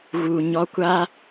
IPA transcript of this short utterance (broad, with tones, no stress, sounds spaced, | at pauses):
ɣ u˨ ɲ ɔ˧ kʷ aː˦